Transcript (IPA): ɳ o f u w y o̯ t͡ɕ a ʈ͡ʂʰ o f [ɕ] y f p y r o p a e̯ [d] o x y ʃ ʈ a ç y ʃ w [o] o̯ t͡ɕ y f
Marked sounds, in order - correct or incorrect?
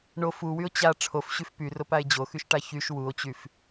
correct, incorrect: d͡ʑ, incorrect: u

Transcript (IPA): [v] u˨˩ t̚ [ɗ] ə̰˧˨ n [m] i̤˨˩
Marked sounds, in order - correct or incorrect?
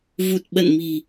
correct, incorrect: ɓ, correct

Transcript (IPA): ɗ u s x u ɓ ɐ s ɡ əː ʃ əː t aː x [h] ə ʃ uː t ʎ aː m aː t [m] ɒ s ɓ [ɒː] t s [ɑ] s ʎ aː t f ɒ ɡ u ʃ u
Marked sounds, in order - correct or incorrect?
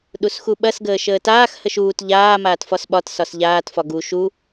correct, incorrect: f, incorrect: ɒ, incorrect: ɒ

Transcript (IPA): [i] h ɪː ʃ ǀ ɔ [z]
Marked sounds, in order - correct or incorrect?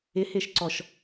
incorrect: ɪ, incorrect: ʃ

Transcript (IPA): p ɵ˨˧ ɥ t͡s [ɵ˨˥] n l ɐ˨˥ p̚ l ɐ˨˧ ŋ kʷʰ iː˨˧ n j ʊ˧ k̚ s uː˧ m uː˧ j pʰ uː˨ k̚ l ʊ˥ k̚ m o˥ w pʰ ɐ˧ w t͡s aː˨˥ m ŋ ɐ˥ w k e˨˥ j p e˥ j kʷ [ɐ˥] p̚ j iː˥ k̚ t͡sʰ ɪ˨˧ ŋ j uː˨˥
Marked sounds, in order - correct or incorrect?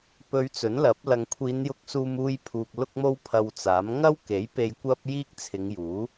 correct, correct

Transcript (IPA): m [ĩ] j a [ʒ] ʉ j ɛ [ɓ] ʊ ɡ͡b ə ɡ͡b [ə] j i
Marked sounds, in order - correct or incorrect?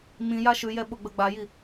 correct, incorrect: ʃ, correct, incorrect: a

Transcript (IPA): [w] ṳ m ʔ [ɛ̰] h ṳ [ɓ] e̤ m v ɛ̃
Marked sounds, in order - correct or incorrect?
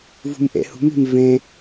incorrect: v, correct, incorrect: m

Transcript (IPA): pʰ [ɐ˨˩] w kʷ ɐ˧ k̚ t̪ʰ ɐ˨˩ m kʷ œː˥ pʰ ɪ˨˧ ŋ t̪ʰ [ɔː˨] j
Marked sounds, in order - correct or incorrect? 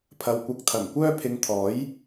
incorrect: ɐ˨, incorrect: ɔː˨˥

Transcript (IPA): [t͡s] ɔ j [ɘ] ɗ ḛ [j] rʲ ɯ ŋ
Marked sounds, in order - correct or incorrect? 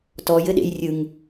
incorrect: t, correct, correct

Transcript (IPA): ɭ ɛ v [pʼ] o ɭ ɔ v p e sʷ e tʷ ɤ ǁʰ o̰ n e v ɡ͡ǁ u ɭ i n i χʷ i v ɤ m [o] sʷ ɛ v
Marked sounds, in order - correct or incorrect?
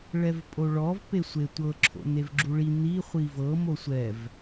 correct, correct

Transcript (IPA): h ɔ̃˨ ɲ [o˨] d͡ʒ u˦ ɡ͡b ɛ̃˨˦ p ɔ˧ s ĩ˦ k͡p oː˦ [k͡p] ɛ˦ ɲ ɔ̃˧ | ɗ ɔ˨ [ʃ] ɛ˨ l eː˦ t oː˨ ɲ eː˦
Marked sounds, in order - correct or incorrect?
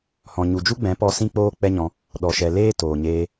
incorrect: u˨, correct, correct

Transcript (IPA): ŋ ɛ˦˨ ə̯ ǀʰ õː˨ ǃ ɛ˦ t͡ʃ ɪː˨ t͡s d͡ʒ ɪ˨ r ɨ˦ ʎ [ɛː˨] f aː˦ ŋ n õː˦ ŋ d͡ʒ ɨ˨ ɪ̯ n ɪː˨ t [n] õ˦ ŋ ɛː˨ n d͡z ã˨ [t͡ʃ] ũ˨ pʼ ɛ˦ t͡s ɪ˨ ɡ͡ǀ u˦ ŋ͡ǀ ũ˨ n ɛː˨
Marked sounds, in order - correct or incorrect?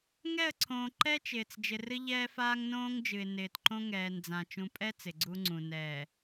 incorrect: ɛː˦, incorrect: ǃ, correct

